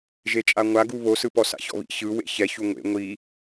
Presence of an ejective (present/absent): present